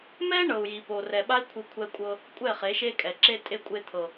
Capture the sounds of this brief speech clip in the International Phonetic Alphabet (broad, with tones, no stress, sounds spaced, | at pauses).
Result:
m ɛ˦ ɳ ɤ˨ u̯ j i˨ p o˨ r ɛ˨ ɓ a˦ i̯ kʷʰ i˧ kʷʰ ɛ˧ kʷʼ ɤ˧ | kʷʼ ɛ˦˨ χ e˨˦ ʃ e˦ kʼ ɛ˨ ǁ e˧ tʼ e˧ kʷʼ e˧ t̪ʰ ɤ˨